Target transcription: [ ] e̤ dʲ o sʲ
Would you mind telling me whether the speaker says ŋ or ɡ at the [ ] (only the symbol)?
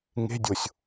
ŋ